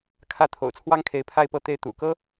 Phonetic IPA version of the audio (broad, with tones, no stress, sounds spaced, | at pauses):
kʰ ä˥˩ t̪ʰ o̰˨˩ ʊ̯ t͡sʰ w ɑ˥ ŋ kʰ e˧˥ ɪ̯ pʰ a˥˧ ɪ̯ p ɤ˥˧ t̪ e˥˩ ɪ̯ t̪ ṵ˨˩ k ɤ˥